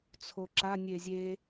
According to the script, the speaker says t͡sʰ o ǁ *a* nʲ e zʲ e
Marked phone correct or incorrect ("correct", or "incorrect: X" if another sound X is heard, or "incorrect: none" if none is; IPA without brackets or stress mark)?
correct